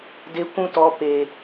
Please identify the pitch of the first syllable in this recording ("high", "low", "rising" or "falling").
high